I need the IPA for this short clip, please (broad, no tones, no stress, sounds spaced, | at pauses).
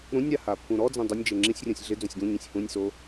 ɾ ũ nʲ ɾ a h a pː ũ ɾ ɔ d͡z ẽ dˤ u nʲ d͡ʒ e ŋ͡ǁ ĩ sʲ rʲ õ sʲ ɮ ɪ d͡z õ sʲ ɡ ũ ɲ ĩ sʲ h ũ nʲ s o